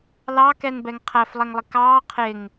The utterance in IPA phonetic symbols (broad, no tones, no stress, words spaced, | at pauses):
lɑkɛnbɛŋ qʰæflˠɛŋlˠɪ kɑː qʰɪŋ